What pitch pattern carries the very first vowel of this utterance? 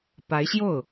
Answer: rising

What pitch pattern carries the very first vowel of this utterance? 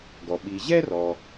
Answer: low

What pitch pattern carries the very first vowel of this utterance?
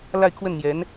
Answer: falling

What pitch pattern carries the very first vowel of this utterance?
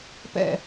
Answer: falling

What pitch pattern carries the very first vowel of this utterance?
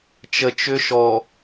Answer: low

